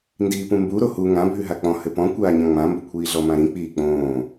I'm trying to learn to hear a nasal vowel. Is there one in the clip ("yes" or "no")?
yes